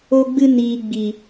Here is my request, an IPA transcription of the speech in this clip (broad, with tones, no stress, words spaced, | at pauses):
o˧ɡ͡bɨ˧niː˨ ɡ͡bi˨